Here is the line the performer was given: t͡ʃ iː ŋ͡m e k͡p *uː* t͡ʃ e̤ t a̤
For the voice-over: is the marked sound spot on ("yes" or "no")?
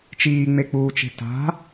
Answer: yes